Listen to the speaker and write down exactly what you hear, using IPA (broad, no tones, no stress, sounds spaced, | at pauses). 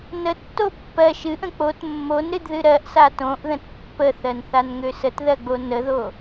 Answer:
n ə tː o pː ɜ ʃ ɨ ʔ ə̃ k͡p o t mː o n ɾ ɨ d ð ɨ ɾ ɜ ʔ s a t õ ʔ ð ə̃ t pː ə θ ɜ n θ a n ŋ ø s ə t ð ɜ ɡ͡b o n ə ð o